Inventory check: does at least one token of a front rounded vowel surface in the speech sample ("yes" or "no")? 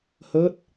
no